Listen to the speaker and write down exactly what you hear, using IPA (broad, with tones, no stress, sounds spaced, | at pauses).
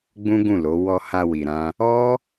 ɡ͡b ũ˦ ɡ ũ˦˨ l o˨˦ w ɔ˧ h a˧ w i˧ ɾ ã˦ | ɔ˦